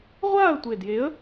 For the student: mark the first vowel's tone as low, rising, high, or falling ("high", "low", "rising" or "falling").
falling